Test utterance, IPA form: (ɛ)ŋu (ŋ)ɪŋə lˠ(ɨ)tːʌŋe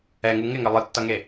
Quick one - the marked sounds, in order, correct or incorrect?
correct, correct, correct

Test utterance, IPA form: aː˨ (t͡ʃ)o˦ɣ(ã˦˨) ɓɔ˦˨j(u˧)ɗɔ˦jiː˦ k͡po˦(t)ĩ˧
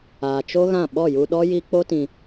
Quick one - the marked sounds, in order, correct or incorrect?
correct, correct, correct, correct

